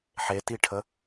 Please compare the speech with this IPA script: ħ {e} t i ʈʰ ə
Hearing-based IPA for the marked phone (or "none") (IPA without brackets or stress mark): e